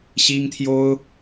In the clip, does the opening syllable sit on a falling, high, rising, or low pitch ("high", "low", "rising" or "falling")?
high